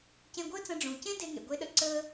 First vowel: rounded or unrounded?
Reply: unrounded